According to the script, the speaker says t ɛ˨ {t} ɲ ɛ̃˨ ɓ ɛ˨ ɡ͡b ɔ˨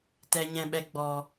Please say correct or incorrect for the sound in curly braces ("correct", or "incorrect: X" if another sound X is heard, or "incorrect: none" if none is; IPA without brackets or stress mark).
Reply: incorrect: none